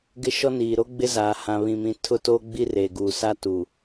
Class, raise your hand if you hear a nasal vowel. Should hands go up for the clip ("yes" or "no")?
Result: yes